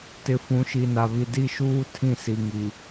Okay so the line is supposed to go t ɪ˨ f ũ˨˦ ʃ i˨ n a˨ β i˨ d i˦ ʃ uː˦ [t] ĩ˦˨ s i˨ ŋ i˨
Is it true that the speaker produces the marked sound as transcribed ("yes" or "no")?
no